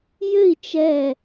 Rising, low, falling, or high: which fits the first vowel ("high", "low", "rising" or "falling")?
falling